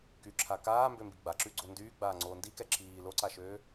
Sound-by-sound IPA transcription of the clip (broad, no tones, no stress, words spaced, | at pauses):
kyǁʰa kaːmbømbi ɡ͡baǁyɡ͡ǀo ndyːɡ͡baːŋ͡ǀoː ndikɛ ǁiː loǀaʃøː